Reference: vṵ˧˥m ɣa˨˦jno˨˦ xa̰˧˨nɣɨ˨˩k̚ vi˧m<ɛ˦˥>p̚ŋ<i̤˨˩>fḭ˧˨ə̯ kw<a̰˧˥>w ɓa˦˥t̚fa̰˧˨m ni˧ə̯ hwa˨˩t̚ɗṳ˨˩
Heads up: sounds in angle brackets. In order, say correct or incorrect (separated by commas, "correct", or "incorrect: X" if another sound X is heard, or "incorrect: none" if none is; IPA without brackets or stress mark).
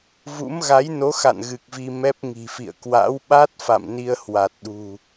correct, correct, correct